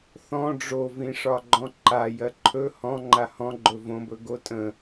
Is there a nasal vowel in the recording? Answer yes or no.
yes